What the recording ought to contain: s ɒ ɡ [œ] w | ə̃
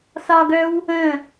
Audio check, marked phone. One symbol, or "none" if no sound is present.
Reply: œ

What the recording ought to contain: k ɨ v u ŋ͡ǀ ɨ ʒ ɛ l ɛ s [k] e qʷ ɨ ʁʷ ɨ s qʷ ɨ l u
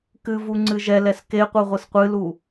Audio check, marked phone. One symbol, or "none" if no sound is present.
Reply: k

